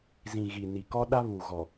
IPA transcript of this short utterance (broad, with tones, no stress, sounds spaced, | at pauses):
z ĩ˨ ɣ i˨ n i˨ k ɔ˦ ɗ a˦ β u˨ ɣ ɔ˨